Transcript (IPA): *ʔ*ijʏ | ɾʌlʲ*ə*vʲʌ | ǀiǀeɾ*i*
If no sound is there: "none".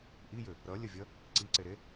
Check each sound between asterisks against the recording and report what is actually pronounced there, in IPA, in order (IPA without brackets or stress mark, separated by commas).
ʔ, ə, e